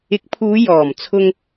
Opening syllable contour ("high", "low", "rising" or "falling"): rising